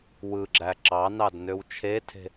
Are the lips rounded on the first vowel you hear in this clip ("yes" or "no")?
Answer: no